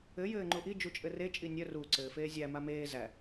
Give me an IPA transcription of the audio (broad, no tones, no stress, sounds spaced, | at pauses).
ɘ j ɘː ŋ͡ǃ u ʔ i d͡ʒ u t͡ʃʼ ɘ r e t͡ʃʼ i nʲ œ r u ǀ ɘː f eː zʲ æ m a m eː z æ